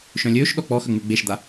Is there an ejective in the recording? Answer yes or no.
no